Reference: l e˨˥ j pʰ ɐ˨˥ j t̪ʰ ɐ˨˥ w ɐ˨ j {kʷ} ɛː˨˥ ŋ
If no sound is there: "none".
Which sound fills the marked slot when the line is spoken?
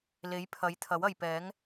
p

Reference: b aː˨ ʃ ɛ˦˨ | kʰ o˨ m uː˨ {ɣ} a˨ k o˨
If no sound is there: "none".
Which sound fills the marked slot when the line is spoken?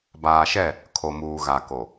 ɣ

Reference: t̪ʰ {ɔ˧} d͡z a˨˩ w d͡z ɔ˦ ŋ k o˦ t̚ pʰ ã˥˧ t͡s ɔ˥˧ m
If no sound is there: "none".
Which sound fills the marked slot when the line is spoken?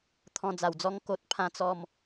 ɔ̃˧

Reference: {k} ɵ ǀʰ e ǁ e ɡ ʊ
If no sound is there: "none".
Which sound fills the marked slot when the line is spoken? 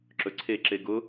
ǁ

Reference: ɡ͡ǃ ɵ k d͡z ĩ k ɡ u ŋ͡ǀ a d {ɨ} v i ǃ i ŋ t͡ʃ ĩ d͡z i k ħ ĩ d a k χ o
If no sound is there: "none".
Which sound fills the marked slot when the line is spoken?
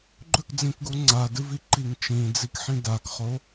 ɨ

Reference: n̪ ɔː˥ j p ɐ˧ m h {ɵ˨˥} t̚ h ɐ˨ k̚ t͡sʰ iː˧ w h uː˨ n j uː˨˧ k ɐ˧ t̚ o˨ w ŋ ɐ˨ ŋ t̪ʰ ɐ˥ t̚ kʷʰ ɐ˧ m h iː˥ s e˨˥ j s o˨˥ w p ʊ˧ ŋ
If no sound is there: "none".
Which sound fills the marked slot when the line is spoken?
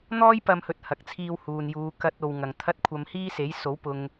ɵ˨˥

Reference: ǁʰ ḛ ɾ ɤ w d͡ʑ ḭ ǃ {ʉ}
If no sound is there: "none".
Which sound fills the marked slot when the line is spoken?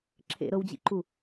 u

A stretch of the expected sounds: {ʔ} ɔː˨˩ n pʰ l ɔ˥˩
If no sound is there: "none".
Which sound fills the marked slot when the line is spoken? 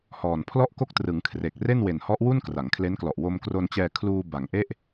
h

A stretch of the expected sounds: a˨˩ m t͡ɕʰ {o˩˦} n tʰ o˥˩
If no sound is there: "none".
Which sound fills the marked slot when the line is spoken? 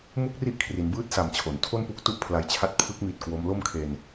o˩˦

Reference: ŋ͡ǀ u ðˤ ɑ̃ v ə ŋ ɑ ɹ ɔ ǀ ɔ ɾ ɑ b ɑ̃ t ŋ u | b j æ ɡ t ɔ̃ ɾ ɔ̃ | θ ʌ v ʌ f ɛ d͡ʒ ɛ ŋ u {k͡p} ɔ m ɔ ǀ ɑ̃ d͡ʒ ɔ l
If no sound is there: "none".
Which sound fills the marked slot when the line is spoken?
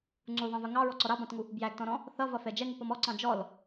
p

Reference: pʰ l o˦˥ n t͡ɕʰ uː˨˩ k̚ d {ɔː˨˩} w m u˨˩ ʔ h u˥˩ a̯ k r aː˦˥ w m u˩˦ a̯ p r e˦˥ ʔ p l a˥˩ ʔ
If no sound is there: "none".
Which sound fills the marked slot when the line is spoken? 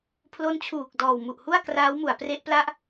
ɔː˨˩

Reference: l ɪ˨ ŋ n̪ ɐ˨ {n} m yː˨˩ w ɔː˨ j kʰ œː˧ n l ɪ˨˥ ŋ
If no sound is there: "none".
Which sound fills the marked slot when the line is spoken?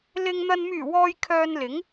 n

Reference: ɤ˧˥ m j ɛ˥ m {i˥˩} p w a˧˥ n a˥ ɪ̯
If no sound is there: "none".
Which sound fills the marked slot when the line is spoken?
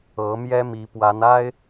i˧˥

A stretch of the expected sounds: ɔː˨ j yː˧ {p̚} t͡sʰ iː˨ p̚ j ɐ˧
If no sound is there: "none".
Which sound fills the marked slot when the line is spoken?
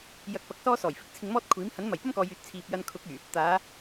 t̚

